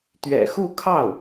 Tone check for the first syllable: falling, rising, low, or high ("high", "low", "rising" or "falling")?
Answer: low